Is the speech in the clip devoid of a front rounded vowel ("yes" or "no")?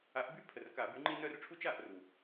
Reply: no